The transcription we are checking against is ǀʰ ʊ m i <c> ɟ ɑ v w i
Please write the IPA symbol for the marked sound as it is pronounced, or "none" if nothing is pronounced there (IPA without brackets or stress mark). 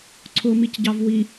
c